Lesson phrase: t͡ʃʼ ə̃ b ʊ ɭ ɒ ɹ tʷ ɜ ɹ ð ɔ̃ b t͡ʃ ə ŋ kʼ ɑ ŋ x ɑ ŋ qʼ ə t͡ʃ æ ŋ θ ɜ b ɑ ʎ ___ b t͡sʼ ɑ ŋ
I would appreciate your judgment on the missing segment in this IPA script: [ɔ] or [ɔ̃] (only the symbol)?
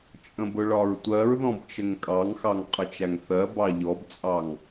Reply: ɔ